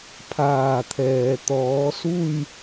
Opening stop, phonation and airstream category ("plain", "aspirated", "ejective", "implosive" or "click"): aspirated